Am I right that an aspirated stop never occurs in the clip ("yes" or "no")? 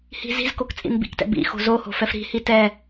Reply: yes